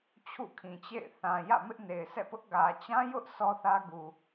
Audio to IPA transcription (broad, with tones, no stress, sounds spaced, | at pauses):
t͡ɕʰ ṵ˦˨ kʰ ĩ˨ t͡ɕ ḛ˦˨ ɪ̯ θ ã˨ j ä̰˦˨ m ɪ˦ ʔ n e˨ ɪ̯ sʰ ɛ̰˦˨ p ʊ˦ ʔ ɡ ä˨ t͡ɕ ã˦ j ʊ˦ ʔ s ɔ˦ θ ä˦ ɡ u˨